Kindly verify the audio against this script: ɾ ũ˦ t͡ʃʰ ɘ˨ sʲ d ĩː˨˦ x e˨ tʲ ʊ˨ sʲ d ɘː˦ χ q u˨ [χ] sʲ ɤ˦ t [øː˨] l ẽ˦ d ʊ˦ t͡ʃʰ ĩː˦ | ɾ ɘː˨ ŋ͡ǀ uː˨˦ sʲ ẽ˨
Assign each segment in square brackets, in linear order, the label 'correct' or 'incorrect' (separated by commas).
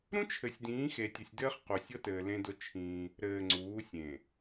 incorrect, incorrect